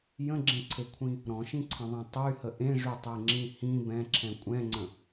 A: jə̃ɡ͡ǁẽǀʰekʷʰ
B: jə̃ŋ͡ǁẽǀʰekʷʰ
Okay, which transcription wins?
A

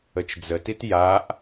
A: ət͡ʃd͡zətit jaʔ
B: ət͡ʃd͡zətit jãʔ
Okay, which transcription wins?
A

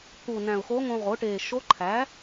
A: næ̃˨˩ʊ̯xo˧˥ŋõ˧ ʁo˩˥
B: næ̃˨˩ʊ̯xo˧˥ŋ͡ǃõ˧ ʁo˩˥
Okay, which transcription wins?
A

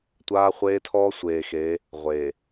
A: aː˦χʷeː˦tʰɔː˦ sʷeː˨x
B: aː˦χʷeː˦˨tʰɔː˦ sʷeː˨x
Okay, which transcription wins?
A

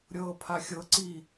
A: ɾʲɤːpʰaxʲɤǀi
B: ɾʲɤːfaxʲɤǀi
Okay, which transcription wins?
A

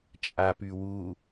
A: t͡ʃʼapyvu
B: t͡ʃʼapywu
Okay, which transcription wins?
B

